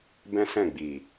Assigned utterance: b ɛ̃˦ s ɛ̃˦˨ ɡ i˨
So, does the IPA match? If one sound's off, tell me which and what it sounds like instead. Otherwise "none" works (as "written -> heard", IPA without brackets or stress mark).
ɡ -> ɡ͡b